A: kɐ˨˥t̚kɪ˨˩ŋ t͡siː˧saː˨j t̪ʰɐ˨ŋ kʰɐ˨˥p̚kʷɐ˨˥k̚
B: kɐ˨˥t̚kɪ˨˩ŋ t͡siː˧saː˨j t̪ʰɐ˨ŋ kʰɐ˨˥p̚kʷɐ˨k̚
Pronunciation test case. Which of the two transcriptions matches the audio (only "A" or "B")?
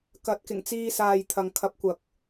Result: B